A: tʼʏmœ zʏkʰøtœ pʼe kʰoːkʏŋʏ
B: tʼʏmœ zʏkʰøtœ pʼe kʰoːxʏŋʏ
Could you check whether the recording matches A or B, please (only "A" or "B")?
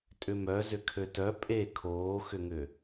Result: B